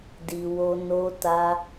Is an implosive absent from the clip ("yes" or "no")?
yes